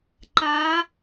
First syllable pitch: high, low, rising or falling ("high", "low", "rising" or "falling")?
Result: rising